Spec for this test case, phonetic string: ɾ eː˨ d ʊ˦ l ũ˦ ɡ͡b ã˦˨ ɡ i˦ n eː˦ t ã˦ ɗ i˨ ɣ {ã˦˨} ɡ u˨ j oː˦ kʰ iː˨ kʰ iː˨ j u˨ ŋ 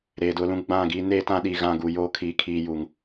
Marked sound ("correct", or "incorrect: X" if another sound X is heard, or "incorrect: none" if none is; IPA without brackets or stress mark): correct